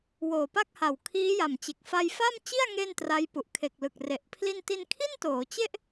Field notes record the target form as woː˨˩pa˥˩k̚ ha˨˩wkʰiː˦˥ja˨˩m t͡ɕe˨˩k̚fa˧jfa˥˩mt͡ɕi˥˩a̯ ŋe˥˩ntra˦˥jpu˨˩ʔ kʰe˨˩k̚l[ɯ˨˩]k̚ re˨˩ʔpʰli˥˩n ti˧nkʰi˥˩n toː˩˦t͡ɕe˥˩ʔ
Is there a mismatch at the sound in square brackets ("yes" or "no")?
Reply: no